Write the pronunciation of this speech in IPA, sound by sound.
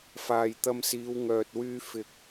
f aː˨ j t̪ ɐ˧ m s iː˨˧ w ŋ œː˨ t̚ w yː˧ f ɪ˨ k̚

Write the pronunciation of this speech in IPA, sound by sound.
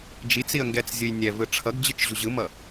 d͡ʒ i t͡s i ə̯ ŋ ɡ ɛ t͡s zʲ ɯ j nʲ ɛ v ɯ ʈ͡ʂʰ ʌ ɡ d͡ʑ ɯ t͡ʃ ʑ u ʑ ɯ m ʌ

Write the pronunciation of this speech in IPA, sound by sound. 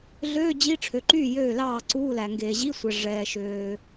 ɮ øː˧˥˧ d͡ʑ i˧˥˧ ʈ͡ʂʰ ø˩ ǃ yː˥˩ j øː˥˩ l ɑː˥˩ ǀ uː˧˥˧ l æ˩ ŋ ɡ eː˩ ʑ i˧˥˧ sʷ ɛ˩ ʐ ɛː˩ ʃ øː˩

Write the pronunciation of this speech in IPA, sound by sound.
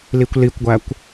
l i kʷ l i kʷ ɡʷ æ kʷ

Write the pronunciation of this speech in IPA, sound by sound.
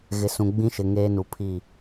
ɣ ɪ˨ s ũ˨ ɡ͡b ĩ˦ ʃ ɪ˨ ŋ eː˦ n u˨ pʰ i˦˨

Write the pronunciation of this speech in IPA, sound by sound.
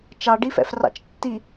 t͡ʃ ɑ ɖ i f ɛ̰ f r ɑ̰ t͡ʃ tː i

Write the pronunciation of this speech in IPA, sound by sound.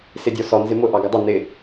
s ɪ dʲ ɔ s ɔ n z ɪ m ʊ ʔ ɑ ɡ ə dˤ ʊ n ɪ

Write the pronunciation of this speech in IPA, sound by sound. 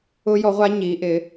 ʊ˦˥ j ɔ˨˥ ʁʷ a˦˥ ɲ i˨˥ ʔ ɪ˨˥

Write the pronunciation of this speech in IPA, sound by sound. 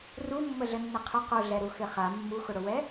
r u mː ə ɮ ə nː ɪ qʰ ʏ q u ɮ ɛ ɾ u x ɪ χ a mː u x ʊ ɽ ʊ w ɛ

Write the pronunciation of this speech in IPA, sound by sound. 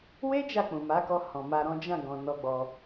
w e˦ d͡ʒ a˦˨ k͡p ũ˨ m a˨˦ k ɔ˧ h ɔ̃˨ m a˧ ɾ ɔ̃˦ d͡ʒ ã˦˨ ɡ ɔ̃˨ n ɔ˧ ɡ͡b ɔ˧

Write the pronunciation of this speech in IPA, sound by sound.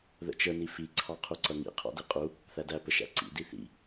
ð ə̰ t͡ʃ ə n i f i ǀʰ ɑ qʰ u ǀ ʌ ŋ ḭ qʰ ɑ̰ d i qʼ u | θ æ d æ p ə ʃ æ̰ ǀ ḭ d i θ ḭ

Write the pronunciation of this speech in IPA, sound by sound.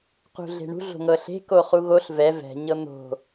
q ṳ ɮ e̤ ɳ ṳ ɮ o̤ ŋ ɤ ɬ e̤ k o χ u ɣ o ɬ v ɛ v ɛ̤ ɲ ɤ n̪ o̤

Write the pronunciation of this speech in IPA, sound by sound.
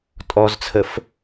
tʼ ɔ z t͡sʰ ə f

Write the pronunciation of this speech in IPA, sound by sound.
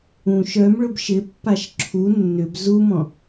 ũ ʃ œ m ɭ ʊ b ʃ ɪ pː a ʃ ǁʰ u nː ʏ b z u m ɔ̃

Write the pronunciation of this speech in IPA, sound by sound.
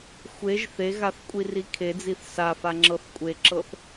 xʷ e ʒ θ e ɣ a θ kʷʼ i r i kʰ e d͡z i θ s a f a ŋ͡ǁ ɤ θ kʷʼ e ǁ ɤ θ

